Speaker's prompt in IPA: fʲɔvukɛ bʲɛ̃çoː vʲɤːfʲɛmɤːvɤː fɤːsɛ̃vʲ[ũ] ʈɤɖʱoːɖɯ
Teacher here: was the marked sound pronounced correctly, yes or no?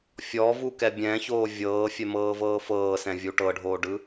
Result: no